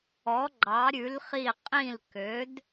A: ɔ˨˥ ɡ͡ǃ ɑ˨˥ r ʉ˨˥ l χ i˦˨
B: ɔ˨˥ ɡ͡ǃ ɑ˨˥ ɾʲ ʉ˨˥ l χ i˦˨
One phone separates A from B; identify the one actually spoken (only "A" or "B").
B